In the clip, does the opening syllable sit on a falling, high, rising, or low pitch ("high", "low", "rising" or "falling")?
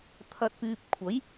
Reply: low